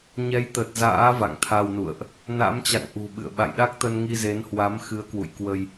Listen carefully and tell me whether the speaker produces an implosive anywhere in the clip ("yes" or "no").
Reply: yes